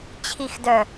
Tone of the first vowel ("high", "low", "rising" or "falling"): low